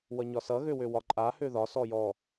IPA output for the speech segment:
w ʌ ɲ ɒ s ʌ ɣ ø w ø w ɒ ǃʼ a h ø ð ɒ s ɔ j ɔ

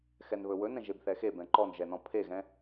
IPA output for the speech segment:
x ɛ n β ɵ w ɵ n ɛ̃ ʒ e b θ ɛ x e b ɛ̃ ǃ ɔ n ʒ ɛ n ɔ̃ pʰ e ɣ ɛ̃

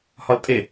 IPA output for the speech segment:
h ɒ l tʼ e

